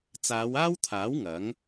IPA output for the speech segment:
t͡s aː˨˧ w aː˥ w t̪ʰ aː˨˥ w ŋ ɐ˨˥ ŋ

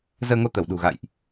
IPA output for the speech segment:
z əː˧ ŋ o˧ t̪ ə˧˩ w ɗ ṳ˨˩ ɣ a̰˧˨ j ʔ

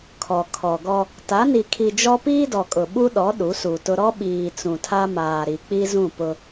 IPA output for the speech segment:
kʰ ɔ˨ kʰ ɔ˨ ɡ ɔ˦ | t a˨˦ n i˨ kʰ i˨ d͡ʒ ɔ˦ p iː˦ d ɔ˨ kʼ ʊ˨ ɓ u˦ ɗ ɔ˨˦ ɗ u˨˦ s u˨ t ʊ˦ ɾ ɔ˦ ɓ iː˨ t͡s ũ˨ tʰ a˦ m aː˨ ɾ i˨ k͡p i˦ z ũ˦˨ p ʊ˦

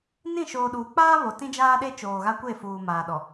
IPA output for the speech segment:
n ĩ˦˨ ʃ oː˨ ɗ uː˨ k͡p aː˦ β o˨ t ĩ˦ d͡ʒ aː˦ ɗ e˦ t͡ʃ oː˨ ɣ a˦ kʷ e˦˨ f uː˨ m aː˨ ɗ ɔ˨

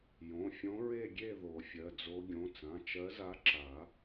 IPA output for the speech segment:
j õ˩˧˩ fʲ õ˧˥ ɹ e˥˧ ɡʲ e˥˧ ð o˨˩˦ fʲ ɜ˩˧˩ d͡z o˧˥ ɡʲ õ˩˧˩ t͡s ã˩˧˩ t͡ʃ ɜ˧˥ z a˧˥ ǁ a˨˩˦

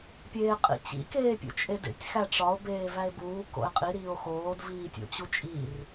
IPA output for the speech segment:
pʲ eː qʼ ḭ t͡ɕ ḭ k eː pʲ ṵ t͡ʃʼ e d ḛ tʲ x æ ʈ͡ʂ ɒ o̯ b eː v æ e̯ b uː k o̰ e̯ qʼ i ɾ iː o̯ x oː d v iː tʲ o̰ t͡ɕ u t͡ʃʼ i r

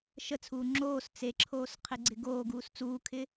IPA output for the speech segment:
ʃ ə t͡sʰ uː ŋ͡ǁ oː s t͡s e ǁʰ oː s qʰ e ɡ͡ǀ ɪ ɡ oː ɡ uː s t͡s uː kʰ ɪ

